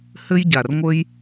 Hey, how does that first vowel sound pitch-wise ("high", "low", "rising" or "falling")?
high